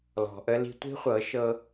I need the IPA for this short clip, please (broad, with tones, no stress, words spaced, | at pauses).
lɔ̤˨ʔə˦ li̤˧tʷi̤˦χʷɤ˨˦ ʃɤ˦